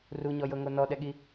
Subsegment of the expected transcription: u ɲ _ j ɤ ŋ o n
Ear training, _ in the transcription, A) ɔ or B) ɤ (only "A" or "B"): A